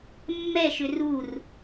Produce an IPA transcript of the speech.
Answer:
mːɛʃʏ rur

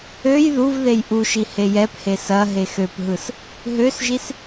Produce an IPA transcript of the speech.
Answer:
øj ðuv ðejʔuʃi hejɛphe sɐ ɦexøpɦɯs | ɦøsʒis

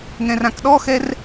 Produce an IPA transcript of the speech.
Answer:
ŋɛ̃rãkɗɔxɛr

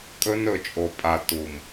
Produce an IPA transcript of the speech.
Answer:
kʼɵ˦n ɵ˨t͡ʃʼo˨pʼa˨ tu˨m

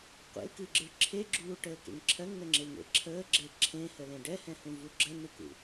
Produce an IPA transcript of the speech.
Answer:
qʷḛlkɨɡ͡ǁɨɭ ǁʰeɡ͡ǁuːʈəːkḛŋ ǁʰɜŋnəŋ͡ǁeŋḛ ǁʰəːɡ͡ǁe ǁʰẽhəlẽ ɖɛhɛ̃hũvu ɡ͡ǁənɨkṵ

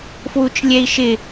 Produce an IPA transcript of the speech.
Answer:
fwut͡ʃlʲɛi̯ʃɪ

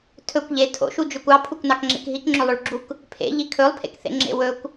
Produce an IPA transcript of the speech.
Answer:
tʰɵkʷ ʎe tʰo̰ʃud͡ʒøkʷ ɑpʰukʷnɑkŋ͡ǁḛk ɦikŋ͡ǁølˠøɭɡ͡ǁuk | pʰḛʎi kʰɵlˠpʰḛkθḛŋ͡ǁḛ wɵkʷ

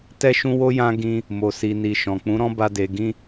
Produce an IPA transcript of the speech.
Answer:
tɛ˦ʃũ˦wo˦jã˦ ɡĩ˧ | mo˨si˨ ni˨ʃɔ̃˨k͡pũ˨˦ ɾɔ̃˦ba˧ de˨ɡĩ˧

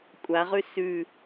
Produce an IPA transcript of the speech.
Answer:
kʷʼaʁʉ sʉ

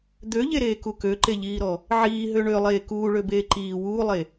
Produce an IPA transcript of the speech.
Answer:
d̪øʎeɾeːku køǃeʎiːɾɔ | ʕiːɦø ɳølˠeː kuːɭøbeː ǃiː wuːlˠe

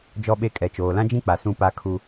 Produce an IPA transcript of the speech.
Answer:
d͡ʒɔ˦ɓe˦kʼɛ˨ t͡ʃoː˨lã˦d͡ʒĩ˦k͡pa˨ sũ˦pa˦ kʰu˦

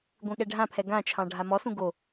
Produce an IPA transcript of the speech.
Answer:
ɡʷẽɠɛɖʱãpʰɛ ɡãt͡ʃʰɑ̃ ɖʱamɔsũ ɡo

